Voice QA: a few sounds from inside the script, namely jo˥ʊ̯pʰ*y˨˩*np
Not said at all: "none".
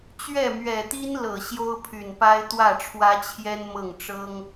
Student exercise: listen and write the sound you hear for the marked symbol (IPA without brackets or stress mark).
y˨˩